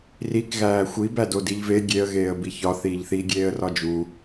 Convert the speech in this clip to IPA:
rik ɣæːxʷi bædodiʎve ɡʲeə̯ ɣeːə̯biçɒ θiːʎθi ɡʲeːə̯rɒd͡ʒu

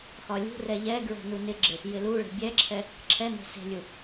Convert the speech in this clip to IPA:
xɒlʲṳrɛ ʎɛɡɹɛ̤ nunɪɡ͡ǁɪ | jɪluɭe̤ bʲɛǁʰɛ | ǁʰɛne̤ se̤lʲu

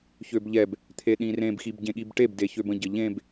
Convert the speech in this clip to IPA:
çøbʎɛb | t̪ʰeɗĩrẽb xibɟẽɠibʈeb deçøbə̃ ɟəʎẽb

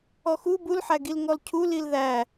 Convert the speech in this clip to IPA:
ɔxu bulħæɡil ŋɔlcʰu lilðæ

